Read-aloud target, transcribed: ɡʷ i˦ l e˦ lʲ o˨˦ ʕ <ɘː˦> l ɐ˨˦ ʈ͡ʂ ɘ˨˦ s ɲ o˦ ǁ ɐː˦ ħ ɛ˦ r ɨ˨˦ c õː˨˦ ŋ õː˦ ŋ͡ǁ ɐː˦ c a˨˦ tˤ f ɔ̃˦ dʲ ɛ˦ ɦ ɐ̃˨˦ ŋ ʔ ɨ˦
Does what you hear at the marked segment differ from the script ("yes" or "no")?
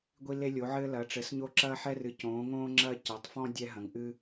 no